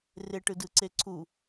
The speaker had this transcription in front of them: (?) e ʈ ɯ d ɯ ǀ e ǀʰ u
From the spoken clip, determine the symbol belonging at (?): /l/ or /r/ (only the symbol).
r